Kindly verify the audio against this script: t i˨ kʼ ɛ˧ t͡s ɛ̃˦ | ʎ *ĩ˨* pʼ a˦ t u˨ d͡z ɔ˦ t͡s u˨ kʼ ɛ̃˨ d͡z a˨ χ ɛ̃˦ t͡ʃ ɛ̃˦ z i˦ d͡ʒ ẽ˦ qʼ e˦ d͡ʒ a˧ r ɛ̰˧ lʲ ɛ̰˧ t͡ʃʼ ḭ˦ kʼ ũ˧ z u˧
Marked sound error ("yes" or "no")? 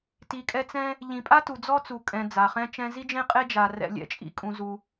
no